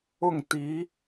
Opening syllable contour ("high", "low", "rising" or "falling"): falling